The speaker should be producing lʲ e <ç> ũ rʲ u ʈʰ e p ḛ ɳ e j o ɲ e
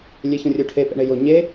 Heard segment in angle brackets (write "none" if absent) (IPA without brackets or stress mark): ç